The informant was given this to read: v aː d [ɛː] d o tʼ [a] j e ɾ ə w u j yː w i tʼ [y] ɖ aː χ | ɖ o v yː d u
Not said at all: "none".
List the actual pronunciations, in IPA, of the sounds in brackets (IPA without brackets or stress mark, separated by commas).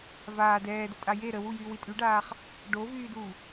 ɛː, a, y